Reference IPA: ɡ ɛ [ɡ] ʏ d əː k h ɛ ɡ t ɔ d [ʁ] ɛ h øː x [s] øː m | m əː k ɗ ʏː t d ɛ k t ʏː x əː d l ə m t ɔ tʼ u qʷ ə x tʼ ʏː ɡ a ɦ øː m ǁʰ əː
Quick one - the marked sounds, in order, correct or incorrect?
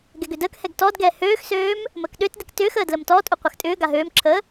correct, incorrect, correct

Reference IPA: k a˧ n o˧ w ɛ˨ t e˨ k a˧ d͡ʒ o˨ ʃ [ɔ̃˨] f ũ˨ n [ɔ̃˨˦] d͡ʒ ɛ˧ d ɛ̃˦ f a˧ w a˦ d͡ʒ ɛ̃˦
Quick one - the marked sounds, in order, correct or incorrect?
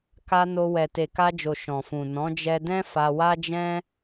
correct, correct

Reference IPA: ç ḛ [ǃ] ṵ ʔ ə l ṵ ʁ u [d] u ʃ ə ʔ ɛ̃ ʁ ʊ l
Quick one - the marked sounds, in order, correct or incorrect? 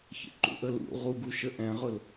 correct, incorrect

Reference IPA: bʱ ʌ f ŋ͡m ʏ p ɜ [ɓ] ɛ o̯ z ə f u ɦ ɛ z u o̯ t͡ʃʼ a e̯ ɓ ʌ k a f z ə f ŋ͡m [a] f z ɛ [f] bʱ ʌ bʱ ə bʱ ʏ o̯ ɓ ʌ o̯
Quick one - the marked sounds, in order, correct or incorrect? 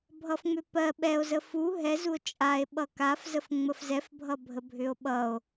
correct, incorrect, correct

